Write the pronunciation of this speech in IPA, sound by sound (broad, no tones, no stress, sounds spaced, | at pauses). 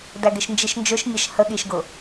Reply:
d æ ɡ ɪ ʃ n d͡ʒ i ʃ n d͡ʒ ʊ ʃ mʲ ʌ ʃ h ə ɠ i ʃ ɡ ʊ